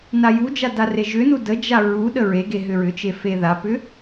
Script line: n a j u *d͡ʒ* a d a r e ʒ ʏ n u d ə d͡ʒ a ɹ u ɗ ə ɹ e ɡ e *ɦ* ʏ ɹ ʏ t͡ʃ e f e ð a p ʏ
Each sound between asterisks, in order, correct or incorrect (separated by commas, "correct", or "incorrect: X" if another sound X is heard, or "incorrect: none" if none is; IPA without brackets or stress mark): correct, correct